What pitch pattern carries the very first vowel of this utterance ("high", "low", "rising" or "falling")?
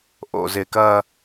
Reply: low